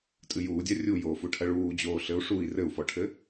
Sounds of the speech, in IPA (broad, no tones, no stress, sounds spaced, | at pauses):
tʼ ɨ j uː dʲ a rʲ u j oː f u ʈʰ ɐ ɭ uː d͡ʑ oː ɬ ɘ u̯ ʂ u i̯ r ɘ u̯ f ɔ ʈʰ ɘ